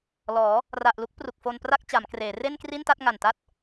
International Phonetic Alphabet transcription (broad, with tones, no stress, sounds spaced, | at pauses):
l ɔː˩˦ | r a˨˩ ʔ l u˦˥ k̚ p r u˨˩ k̚ f o˧ n p r a˥˩ k̚ t͡ɕ a˩˦ m k r eː˩˦ r e˥˩ n k r i˥˩ n t a˥˩ t̚ ŋ a˨˩ n t a˥˩ t̚